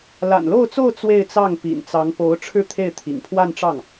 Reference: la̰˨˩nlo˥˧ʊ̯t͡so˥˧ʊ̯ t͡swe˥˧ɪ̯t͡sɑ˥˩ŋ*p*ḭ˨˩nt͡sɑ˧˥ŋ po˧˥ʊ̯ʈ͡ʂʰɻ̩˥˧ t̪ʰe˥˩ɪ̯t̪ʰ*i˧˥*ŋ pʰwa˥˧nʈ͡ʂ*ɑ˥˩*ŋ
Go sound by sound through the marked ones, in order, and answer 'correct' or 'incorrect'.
correct, incorrect, correct

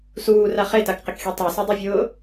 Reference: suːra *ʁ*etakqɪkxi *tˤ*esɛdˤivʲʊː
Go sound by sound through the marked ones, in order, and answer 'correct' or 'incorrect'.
incorrect, correct

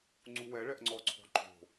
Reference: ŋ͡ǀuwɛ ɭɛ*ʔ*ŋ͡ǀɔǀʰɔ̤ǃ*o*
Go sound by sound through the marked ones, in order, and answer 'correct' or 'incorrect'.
correct, incorrect

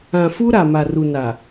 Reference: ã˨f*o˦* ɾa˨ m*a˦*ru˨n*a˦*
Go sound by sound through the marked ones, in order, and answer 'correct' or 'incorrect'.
incorrect, incorrect, incorrect

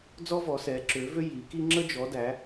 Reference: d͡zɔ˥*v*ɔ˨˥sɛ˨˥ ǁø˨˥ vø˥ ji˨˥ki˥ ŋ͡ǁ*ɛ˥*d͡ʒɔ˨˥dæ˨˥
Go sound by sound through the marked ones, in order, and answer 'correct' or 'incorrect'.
correct, incorrect

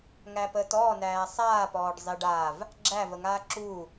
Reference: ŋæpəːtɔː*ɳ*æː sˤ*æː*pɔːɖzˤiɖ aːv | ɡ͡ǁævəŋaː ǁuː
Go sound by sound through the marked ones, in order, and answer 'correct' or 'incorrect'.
incorrect, incorrect

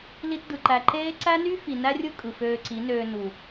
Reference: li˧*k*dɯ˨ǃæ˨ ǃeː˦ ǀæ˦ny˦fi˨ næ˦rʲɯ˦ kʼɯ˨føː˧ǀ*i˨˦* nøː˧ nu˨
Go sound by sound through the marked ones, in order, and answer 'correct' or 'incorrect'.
incorrect, correct

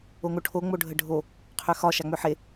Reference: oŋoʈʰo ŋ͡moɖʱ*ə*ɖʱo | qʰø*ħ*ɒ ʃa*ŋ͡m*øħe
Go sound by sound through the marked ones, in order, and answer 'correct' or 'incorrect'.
correct, incorrect, correct

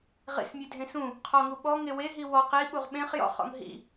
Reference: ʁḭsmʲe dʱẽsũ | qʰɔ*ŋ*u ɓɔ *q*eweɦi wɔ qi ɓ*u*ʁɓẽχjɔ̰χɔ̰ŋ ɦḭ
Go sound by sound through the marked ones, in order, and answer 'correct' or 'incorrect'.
correct, incorrect, correct

